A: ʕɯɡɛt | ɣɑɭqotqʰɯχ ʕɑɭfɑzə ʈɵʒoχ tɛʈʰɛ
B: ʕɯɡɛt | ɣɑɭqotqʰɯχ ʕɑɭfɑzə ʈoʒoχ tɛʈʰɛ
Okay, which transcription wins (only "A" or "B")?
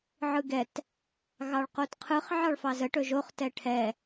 A